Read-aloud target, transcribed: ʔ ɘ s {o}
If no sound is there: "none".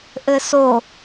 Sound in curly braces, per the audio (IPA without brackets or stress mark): o